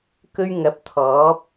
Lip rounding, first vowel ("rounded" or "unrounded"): rounded